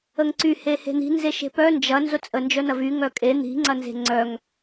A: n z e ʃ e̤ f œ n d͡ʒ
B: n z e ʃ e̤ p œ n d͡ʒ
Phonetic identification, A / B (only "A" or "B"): B